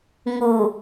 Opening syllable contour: low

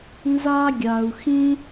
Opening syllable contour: high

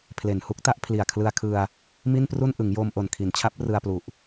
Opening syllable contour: low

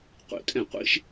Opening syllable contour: falling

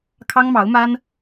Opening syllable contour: high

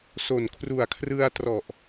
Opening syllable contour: low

